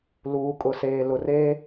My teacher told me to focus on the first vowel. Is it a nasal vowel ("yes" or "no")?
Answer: no